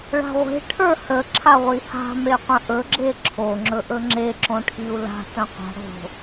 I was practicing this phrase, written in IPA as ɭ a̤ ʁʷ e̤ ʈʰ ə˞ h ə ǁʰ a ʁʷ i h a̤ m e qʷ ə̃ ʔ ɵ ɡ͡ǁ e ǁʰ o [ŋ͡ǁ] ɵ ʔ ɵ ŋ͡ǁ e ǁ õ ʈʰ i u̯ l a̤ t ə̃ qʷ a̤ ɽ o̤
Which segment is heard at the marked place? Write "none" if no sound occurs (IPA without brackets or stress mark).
ŋ͡ǁ